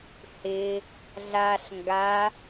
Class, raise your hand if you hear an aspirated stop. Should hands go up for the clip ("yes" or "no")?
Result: no